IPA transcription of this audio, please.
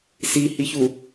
sihiçu

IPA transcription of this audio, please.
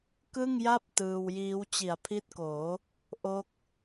kɯ˥˩ŋja˥˩p̚ tɯː˧wjiː˦˥w t͡ɕi˩˦a̯pʰi˦˥t̚koː˩˦ | ʔo˦˥k̚

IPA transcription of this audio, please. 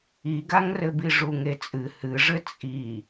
iɡaŋrɘbi ʐuŋet͡sʼɨ hɨʐɘ t͡sʼi

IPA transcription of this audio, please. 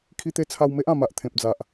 kʰi˦t̪e˥˧ t͡sʰa˧w me˦ʔã˨˩ma˨ʔ t̪ʰẽ˨p̚d͡za˨ʔ

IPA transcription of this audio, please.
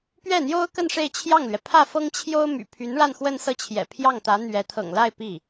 pɥɛ˥˩n̪jo˥ʊ̯kə˥˧n ʂe˥˧ɪ̯t͡ɕʰjɑ˥˩ŋlɥɛ˩ pʰä˥˩ fɤ˥ŋt͡ɕʰjo˥ʊ̯ my̰˨˩pʰy˧˥n ɻa˥˧nxwə˥˧nsɤ˥˩t͡ɕʰjɛ̰˨˩ pʰjɑ˥˩ŋt̪ä˧˥n̪ɥɛ˧˥ t̪ʰɤ̰˨˩ŋla˥˧ɪ̯ pi˥˩

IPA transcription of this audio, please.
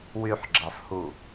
wyħɡ͡ǁɑfhu

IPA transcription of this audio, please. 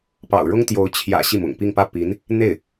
pɑ̰˨˩ʊ̯ɻʊ˥ŋt̪jo˧˥ʊ̯ t͡ɕʰjä̰˨˩ ɕi˥˩mʊ̰˨˩ŋpi˥˧ŋpä˥˩ pi˧˥n | n̪e˥˩ɪ̯

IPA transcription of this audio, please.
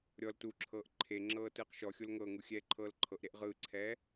ɾʲɔl tuǁʰɤːʔ ǃʰeŋ͡ǁɤː tɯːqʃɔxʲol ŋɤŋu xʲɛːǃʰɤːlǃʰɤʔɾeʔ ʁɯːǀʰɛː

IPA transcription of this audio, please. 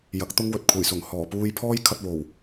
jɐ˨˥k̚t̪ʊ˥ŋwɵ˨t̚ kʷʰɐ˨˩jsʊ˨˩ŋ hɔː˨˩puː˧j pʰɔː˥jkʰɐ˧t̚wo˨˩w

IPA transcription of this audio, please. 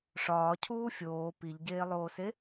ʂɒːcʰuː fʲoː piʎɟeːlˠoːse

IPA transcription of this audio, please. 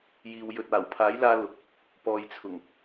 jiː˨w jɵ˨t̚aː˨˩wpʰaː˨˥jlaː˧ lʊ˨k̚ | pɔː˨jt͡sʰʊ˨˩ŋ

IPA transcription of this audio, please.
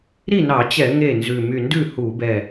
ɾi˥˩nɑ˧˩˧t͡ɕɛ˧˩˧ ŋe˥˩nzʉ˧˩ my˧˩ndʉ˥˩ hu˧˩˧bɛ˧˩

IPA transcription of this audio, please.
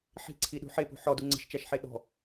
ħi̤ǀʰiɗṳ ħepṳ ħɔdu ŋ͡ǀə̤ʃt͡ʃæʃħe ɗɔ̤

